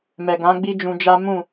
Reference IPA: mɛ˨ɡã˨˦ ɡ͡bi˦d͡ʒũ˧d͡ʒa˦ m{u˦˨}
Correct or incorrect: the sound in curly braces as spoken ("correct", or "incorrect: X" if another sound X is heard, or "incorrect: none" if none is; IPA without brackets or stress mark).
incorrect: ũ˦˨